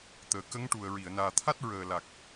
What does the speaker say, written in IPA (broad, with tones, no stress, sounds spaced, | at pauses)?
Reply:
t̪ əː˨˩ k ə˧˥ ŋ ʈ u˨˩ ə̯ ɹ i˨˩˨ ə̯ n aː˨˩ t̪ʰ a˦˥ t̚ ɹ əː˨˩ l a˨˩ k̚